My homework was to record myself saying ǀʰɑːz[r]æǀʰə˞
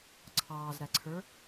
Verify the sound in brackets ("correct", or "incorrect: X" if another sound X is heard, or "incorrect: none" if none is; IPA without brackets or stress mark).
incorrect: ɾ